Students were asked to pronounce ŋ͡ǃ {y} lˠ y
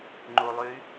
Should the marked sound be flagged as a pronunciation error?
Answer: yes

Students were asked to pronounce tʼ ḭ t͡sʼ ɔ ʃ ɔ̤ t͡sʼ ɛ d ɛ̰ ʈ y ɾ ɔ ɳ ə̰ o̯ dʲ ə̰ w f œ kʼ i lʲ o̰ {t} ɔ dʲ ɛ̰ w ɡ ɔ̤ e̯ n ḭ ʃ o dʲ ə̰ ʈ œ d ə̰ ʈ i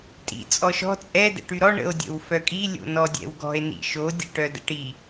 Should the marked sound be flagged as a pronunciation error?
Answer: yes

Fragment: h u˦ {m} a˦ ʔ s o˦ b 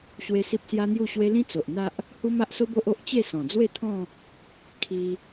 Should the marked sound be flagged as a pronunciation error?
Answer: no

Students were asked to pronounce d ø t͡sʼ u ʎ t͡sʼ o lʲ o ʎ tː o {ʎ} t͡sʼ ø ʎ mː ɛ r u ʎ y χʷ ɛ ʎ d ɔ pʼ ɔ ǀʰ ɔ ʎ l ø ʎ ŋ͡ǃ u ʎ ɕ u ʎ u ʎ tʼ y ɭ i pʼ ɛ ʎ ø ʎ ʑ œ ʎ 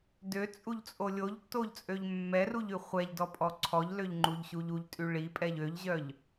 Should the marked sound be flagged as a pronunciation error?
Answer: no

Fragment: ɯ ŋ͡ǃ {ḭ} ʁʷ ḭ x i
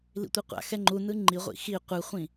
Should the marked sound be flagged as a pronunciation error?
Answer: yes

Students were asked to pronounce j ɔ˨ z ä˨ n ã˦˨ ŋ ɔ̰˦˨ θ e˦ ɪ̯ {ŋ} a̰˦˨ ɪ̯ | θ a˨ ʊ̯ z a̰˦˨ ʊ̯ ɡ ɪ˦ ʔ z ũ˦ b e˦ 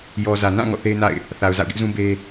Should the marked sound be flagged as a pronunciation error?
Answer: yes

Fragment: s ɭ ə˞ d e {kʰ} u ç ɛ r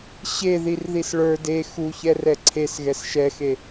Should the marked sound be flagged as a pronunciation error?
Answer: yes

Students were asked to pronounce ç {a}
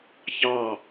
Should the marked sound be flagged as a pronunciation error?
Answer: yes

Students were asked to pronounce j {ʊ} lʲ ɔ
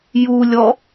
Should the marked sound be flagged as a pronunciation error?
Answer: yes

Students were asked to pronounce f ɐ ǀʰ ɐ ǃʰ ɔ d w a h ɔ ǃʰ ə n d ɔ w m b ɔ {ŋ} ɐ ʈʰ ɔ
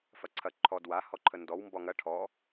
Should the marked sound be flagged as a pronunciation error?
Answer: no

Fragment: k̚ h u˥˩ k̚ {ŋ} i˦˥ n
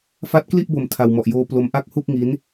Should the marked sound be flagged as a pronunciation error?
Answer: no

